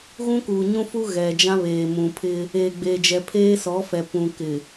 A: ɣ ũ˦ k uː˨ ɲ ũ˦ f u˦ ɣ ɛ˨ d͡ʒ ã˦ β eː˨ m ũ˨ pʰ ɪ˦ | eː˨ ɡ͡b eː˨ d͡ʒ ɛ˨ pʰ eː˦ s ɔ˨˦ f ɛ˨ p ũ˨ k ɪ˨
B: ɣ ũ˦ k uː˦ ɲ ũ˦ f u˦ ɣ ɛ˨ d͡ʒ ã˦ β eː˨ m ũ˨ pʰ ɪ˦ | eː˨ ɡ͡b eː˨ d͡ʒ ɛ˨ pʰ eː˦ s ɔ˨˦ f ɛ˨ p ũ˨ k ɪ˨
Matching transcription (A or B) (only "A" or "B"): A